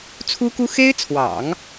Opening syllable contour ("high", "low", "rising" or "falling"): high